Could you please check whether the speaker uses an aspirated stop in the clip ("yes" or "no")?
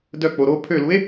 yes